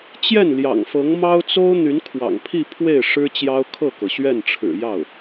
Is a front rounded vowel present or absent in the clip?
present